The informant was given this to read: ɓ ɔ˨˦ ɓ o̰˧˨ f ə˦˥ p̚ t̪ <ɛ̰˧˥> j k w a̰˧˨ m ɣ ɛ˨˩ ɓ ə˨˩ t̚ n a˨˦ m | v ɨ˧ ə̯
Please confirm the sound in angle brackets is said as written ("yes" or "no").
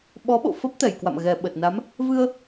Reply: no